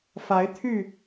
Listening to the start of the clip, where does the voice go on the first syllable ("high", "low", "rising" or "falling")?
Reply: rising